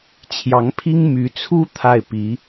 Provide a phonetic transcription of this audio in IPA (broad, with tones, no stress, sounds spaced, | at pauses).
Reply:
t͡ɕʰ j ɑ˧˥ ŋ pʰ i˥ ŋ m y˧˥ t͡sʰ u˥ t̪ʰ a˥˩ ɪ̯ p i˧˥